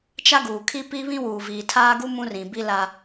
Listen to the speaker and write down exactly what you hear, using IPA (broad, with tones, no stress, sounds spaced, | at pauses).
t͡ʃ a˦ ɡ uː˨ kʰ i˦ p i˦ β ĩ˦ w uː˨ v iː˨ tʰ aː˦ ɡ u˦ m ũ˦ r ĩ˨ b i˦ l a˦